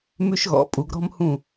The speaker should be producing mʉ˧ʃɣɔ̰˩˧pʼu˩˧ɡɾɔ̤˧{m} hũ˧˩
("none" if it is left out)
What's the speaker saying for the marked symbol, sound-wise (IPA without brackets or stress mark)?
m